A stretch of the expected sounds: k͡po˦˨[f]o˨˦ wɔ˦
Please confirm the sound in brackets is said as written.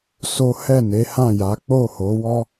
no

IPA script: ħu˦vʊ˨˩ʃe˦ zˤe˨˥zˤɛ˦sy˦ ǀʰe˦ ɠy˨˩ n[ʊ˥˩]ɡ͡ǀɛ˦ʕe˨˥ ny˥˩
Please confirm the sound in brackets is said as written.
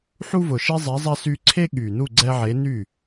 no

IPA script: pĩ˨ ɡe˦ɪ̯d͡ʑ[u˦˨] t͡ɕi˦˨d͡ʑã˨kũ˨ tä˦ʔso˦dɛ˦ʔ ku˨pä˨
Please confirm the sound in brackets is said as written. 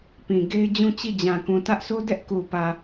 no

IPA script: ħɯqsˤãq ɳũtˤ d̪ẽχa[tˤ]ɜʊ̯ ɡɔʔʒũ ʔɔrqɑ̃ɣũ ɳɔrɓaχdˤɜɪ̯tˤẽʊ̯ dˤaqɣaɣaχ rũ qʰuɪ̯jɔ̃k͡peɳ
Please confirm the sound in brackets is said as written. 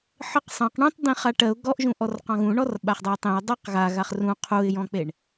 no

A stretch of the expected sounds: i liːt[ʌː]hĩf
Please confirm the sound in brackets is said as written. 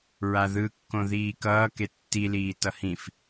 no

